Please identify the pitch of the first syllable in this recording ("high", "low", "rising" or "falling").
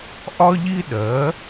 high